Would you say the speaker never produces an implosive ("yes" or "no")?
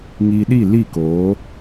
no